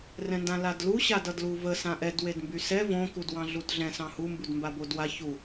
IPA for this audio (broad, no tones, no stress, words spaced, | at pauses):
rɛ̃ndãladlu ɕadʌdluvə sãʔɛd wedmbysɛ võ kudwɑ̃ɮudɮɛ̃ sɑ̃hu mbudmbabodwa çu